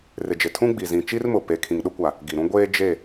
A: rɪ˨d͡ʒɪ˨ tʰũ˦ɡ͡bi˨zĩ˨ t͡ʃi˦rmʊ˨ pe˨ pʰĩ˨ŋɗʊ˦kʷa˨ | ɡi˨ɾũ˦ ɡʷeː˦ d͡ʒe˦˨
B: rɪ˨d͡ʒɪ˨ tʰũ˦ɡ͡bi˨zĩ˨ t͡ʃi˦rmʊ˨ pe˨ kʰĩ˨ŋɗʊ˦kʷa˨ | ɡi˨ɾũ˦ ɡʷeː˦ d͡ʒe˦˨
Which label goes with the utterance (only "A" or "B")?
B